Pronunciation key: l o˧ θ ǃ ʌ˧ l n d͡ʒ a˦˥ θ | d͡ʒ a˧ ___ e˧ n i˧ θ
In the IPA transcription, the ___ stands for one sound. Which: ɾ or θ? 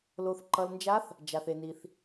θ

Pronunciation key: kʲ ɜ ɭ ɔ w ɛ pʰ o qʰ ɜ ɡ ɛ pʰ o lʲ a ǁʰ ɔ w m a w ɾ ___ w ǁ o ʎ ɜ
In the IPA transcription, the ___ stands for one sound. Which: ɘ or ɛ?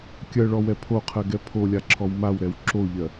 ɛ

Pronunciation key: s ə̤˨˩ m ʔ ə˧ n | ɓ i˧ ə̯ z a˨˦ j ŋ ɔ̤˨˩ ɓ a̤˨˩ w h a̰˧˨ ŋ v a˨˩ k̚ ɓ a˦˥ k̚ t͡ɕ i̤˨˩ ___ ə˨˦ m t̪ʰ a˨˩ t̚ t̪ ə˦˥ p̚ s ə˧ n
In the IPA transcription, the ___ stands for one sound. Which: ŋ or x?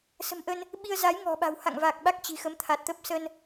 x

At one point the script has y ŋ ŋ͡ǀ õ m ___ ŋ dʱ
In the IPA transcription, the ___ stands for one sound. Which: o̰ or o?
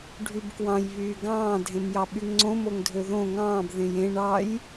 o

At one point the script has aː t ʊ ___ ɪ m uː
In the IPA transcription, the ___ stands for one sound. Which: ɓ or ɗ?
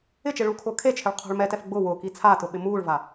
ɓ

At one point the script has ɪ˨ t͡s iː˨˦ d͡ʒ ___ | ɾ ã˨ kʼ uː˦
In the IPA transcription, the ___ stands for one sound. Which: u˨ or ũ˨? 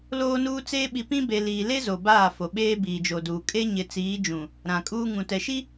ũ˨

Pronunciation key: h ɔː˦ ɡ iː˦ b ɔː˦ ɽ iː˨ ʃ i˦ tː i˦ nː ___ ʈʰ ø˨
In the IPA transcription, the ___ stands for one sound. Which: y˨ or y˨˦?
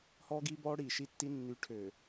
y˨˦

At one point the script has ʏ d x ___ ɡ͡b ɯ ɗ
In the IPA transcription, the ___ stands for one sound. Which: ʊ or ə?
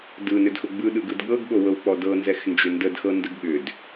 ʊ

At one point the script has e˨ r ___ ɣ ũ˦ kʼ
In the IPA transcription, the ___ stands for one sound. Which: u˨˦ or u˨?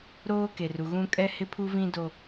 u˨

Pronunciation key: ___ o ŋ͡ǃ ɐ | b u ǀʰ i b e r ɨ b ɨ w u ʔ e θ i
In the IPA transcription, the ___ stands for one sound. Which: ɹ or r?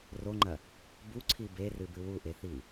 r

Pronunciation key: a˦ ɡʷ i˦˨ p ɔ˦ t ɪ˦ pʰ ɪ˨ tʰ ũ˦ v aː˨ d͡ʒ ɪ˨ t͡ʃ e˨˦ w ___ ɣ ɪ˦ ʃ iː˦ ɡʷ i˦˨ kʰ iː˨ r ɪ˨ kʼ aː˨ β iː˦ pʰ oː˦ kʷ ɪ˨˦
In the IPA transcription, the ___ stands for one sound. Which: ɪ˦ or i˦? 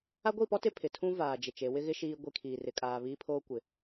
ɪ˦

